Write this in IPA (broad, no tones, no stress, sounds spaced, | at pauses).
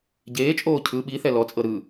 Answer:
ɟ eː t͡ʃʼ oː cʰ ɯ ɓ i θ ɛ l ɔ t͡sʼ ɤ ɾ ɯ